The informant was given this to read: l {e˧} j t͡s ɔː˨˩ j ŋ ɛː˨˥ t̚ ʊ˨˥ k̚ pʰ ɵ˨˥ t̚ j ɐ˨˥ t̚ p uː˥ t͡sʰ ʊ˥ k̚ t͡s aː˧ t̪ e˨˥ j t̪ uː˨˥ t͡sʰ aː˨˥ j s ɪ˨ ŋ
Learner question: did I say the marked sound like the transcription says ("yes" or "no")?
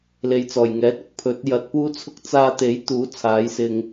no